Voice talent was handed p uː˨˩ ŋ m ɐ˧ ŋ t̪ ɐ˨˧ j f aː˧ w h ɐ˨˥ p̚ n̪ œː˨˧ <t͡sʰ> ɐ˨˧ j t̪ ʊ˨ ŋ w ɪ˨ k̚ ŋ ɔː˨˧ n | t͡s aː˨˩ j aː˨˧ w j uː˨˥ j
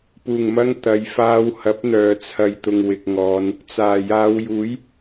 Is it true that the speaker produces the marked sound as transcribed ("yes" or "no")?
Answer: yes